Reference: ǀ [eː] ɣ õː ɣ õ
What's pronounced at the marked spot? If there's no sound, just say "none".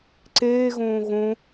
eː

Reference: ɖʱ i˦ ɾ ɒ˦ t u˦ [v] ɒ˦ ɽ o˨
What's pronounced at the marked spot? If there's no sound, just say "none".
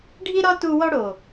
w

